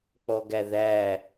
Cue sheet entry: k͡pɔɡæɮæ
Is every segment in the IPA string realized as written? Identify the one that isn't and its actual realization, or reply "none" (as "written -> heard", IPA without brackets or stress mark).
ɮ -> ð